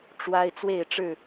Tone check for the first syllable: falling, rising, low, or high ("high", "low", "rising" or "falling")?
high